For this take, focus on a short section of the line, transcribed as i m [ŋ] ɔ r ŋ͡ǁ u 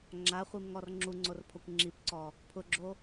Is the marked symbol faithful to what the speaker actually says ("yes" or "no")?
yes